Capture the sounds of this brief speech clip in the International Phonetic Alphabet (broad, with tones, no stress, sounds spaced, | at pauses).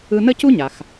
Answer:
ɯ˧ n ə˥ c u˥ ɲ a˩ x